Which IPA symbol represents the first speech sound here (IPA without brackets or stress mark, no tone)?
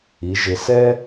i